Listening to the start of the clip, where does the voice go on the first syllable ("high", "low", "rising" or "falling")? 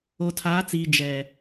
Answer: low